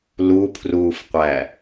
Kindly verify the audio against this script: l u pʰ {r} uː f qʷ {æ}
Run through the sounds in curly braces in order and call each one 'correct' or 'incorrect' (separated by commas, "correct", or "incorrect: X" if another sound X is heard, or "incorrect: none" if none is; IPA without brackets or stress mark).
correct, correct